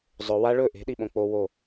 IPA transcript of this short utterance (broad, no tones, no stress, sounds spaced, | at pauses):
zˤ ɵ w a ɭ ɵ ʔ e̤ ɗ i ɓ õ k͡p o w o